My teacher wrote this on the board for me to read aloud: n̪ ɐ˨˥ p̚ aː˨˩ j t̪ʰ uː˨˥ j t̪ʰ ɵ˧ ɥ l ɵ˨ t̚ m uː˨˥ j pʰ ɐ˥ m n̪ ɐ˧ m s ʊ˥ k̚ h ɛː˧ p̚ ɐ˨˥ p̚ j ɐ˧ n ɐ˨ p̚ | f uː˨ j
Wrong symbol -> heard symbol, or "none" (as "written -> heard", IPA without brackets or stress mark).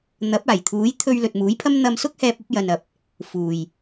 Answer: none